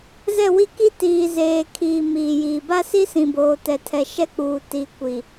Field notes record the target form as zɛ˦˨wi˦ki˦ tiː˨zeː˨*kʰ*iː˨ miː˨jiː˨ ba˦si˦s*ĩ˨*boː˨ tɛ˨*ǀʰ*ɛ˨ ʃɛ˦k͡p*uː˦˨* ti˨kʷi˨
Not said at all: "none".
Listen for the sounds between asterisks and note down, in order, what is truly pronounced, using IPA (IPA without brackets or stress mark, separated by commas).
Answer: kʰ, ĩ˨, tʰ, uː˨